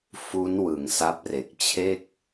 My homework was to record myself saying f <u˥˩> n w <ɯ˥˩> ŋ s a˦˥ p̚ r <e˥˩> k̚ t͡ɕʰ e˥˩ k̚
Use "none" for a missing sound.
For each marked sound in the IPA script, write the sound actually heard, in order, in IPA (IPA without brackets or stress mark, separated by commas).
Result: u˦˥, ɯ˩˦, e˨˩